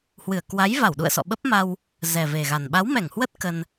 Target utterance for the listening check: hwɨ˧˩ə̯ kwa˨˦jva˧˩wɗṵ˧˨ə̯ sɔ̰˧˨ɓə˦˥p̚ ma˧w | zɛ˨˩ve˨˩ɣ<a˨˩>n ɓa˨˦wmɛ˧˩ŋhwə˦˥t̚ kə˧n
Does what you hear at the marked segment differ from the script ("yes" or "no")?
no